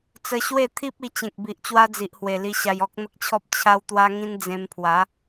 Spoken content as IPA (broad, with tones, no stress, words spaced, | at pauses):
t͡sə˧ɕwe˥˧ t̪ʰi˦p̚ i˧t͡ɕẽ˨k̚bi˨ʔ t͡ɕwa˦d͡zi˨ʔhwe˨˩ li˧ɕa˧jɔ˦k̚ n̪ə˦k̚t͡ɕʰɔ˦p̚ t͡ɕʰa˦wt̪wa˦ŋĩ˦n d͡zẽ˧mpʰwa˨˦